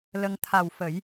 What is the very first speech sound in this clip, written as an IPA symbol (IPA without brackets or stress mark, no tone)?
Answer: l